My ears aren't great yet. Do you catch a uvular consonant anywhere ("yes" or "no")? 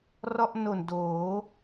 no